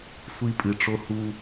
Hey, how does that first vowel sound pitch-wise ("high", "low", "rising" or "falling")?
high